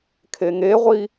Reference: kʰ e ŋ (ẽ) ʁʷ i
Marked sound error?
yes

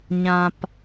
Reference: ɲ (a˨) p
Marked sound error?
yes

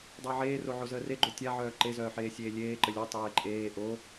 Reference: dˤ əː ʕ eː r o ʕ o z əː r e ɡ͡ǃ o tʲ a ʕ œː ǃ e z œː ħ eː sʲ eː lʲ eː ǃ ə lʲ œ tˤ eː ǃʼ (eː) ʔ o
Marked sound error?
no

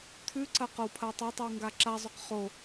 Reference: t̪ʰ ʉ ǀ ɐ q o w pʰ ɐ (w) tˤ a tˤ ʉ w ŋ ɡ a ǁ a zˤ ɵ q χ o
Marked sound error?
no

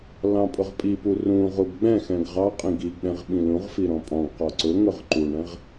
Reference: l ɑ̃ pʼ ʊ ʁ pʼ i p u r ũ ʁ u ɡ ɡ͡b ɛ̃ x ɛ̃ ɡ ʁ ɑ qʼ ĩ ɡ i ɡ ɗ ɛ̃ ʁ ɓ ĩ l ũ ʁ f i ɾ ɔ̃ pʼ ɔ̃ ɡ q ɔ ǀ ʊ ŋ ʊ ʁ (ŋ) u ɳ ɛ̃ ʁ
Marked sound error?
yes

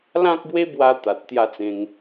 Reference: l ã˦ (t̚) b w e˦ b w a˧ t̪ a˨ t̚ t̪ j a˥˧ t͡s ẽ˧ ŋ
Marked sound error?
yes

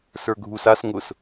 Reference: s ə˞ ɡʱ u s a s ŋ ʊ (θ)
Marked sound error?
yes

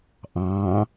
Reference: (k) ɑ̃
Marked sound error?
yes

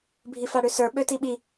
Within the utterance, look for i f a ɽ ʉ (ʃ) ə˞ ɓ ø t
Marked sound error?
yes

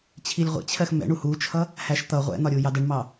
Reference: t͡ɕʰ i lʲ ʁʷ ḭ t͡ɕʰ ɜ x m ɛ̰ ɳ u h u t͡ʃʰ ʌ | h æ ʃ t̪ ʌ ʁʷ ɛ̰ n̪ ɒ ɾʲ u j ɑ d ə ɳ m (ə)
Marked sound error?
yes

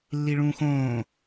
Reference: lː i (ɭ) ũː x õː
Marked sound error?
no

